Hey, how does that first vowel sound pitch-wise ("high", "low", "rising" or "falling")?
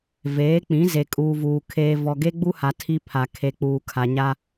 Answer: rising